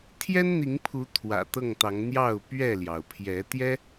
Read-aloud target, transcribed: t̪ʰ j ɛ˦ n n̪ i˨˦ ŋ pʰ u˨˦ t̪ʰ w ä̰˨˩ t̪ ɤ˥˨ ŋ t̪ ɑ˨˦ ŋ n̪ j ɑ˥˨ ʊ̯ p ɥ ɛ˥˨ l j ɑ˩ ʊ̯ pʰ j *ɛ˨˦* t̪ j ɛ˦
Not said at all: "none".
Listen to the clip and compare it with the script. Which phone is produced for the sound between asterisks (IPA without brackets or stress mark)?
ɛ˨˦